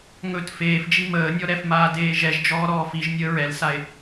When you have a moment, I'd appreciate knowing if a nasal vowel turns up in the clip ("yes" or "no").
no